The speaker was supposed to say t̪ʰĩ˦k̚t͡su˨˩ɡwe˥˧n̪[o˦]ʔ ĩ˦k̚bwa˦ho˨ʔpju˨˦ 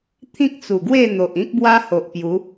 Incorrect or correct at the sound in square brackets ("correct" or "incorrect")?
incorrect